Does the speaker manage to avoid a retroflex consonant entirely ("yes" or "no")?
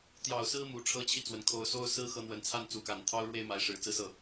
no